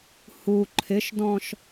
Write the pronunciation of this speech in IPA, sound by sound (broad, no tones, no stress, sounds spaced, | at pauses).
h u ǃʰ ɪ ʃ d ɔ̃ ʃ